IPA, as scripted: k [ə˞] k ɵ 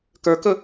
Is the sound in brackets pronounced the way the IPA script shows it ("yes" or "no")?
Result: yes